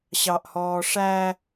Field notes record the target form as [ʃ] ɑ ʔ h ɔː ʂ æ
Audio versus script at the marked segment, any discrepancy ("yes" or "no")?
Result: yes